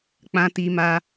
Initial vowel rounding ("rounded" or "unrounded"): unrounded